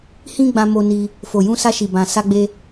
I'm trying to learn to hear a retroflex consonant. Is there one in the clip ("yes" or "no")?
no